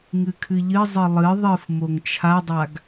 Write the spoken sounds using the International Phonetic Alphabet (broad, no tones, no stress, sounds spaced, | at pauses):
ŋ ɨ kʰ ɨ ʎ ɨ zˤ ɨ lˠ ɨ ðˤ ɨ f m o ŋ t͡ʃʰ a dˤ a ɡ